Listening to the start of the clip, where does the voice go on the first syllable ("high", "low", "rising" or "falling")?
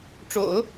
low